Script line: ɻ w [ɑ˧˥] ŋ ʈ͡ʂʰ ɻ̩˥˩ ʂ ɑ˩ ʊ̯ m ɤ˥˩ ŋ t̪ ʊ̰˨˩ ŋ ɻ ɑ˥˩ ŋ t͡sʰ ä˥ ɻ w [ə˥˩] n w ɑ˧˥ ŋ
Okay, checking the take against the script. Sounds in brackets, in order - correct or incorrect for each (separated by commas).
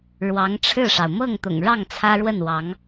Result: correct, correct